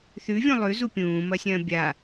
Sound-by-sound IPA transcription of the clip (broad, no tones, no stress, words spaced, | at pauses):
θʉvʲũ lˠʉzu pʲũːmɐsʲɐ̃ː bʲa